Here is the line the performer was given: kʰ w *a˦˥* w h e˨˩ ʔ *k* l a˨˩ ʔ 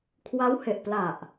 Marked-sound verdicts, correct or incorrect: correct, incorrect

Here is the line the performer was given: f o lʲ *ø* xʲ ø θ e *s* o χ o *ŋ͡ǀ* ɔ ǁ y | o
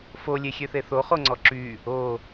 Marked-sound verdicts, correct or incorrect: incorrect, incorrect, correct

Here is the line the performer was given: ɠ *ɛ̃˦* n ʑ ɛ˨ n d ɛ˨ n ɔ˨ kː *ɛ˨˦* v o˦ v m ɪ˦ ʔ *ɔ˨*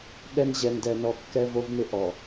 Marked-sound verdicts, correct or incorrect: incorrect, incorrect, correct

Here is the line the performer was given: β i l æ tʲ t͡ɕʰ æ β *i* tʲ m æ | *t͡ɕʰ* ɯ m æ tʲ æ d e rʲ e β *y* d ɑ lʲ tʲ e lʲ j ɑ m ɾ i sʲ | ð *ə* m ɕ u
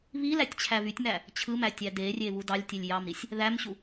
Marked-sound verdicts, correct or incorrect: incorrect, correct, incorrect, incorrect

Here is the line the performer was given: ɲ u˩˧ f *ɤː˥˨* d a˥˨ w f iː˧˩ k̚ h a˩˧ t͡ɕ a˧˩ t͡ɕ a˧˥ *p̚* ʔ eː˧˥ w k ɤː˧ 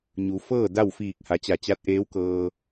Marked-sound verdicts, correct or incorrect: correct, incorrect

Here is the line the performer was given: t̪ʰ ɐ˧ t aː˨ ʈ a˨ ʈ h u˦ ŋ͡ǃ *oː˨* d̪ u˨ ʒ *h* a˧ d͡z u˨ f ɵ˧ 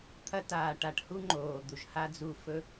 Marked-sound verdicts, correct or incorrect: correct, correct

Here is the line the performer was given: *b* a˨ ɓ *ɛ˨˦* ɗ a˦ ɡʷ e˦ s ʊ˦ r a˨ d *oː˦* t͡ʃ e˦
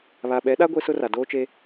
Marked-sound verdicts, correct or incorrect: incorrect, correct, correct

